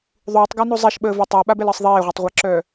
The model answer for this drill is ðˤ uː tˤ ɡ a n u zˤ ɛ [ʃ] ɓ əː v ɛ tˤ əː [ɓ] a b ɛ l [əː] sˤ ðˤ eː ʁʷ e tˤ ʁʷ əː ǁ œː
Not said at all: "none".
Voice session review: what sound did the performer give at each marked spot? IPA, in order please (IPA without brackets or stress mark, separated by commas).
ʃ, ɓ, əː